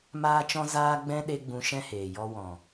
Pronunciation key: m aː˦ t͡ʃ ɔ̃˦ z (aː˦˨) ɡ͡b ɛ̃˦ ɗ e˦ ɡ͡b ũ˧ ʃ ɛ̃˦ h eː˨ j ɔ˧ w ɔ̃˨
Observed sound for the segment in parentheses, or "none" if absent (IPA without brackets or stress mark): aː˦